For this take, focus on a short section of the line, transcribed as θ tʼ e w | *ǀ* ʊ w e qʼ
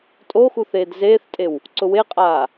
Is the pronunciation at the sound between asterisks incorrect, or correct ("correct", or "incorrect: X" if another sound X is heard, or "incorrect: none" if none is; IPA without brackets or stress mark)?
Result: correct